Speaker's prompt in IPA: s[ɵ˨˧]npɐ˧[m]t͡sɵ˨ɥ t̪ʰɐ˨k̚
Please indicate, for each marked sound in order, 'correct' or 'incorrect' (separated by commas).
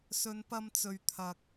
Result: correct, correct